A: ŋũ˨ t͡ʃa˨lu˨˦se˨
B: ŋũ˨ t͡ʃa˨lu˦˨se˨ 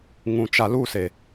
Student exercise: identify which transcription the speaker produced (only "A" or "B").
B